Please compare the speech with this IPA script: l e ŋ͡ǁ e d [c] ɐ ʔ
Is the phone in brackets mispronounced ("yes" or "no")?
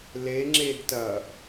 yes